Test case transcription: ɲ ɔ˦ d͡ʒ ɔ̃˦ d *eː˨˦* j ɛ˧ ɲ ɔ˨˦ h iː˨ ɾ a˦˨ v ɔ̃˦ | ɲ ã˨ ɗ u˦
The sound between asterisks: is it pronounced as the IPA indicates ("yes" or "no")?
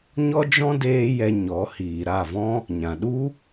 no